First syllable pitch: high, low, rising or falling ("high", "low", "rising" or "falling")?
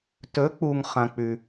rising